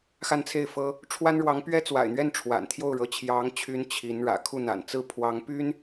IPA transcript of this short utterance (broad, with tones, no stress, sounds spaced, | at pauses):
x a˥˧ n t͡sʰ e˥˩ ɪ̯ f ɤ˥ | ʈ͡ʂʰ w a˥ n ɻ w ɑ˧˥ ŋ p ɥ ɛ˥ t͡s w a̰˨˩ ɪ̯ n̪ ɥ ɛ˥˩ n ʈ͡ʂʰ w a̰˨˩ n t̪ʰ j o˥˩ ʊ̯ ɻ ɤ˧˥ t͡ɕʰ j ɑ˧˥ ŋ t͡ɕʰ y˧˥ n t͡ɕʰ i˧˥ n ɻ ä̰˨˩ kʰ u˥˩ n̪ a̰˨˩ n t͡s ɹ̩˥˩ pʰ w ɑ˧˥ ŋ p y˥ n